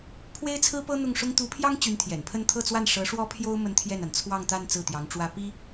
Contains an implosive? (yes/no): no